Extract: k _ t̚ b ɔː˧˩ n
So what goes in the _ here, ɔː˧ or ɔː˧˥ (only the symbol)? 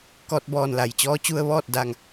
ɔː˧